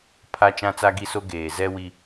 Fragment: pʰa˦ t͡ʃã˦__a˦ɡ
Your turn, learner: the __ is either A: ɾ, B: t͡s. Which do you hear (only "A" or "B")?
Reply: B